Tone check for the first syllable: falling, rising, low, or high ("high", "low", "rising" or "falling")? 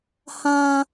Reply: low